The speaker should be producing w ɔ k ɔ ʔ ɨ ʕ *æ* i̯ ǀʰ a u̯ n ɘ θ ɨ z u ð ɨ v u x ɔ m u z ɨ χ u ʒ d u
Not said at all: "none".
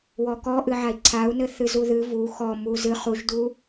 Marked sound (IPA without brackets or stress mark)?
a